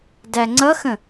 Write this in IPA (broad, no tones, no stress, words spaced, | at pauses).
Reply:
dæŋ͡ǀʌxə̃